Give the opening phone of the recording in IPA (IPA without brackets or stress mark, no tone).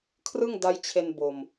kʰ